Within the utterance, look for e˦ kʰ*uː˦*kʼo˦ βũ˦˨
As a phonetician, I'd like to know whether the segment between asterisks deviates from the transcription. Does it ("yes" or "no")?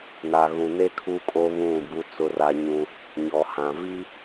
yes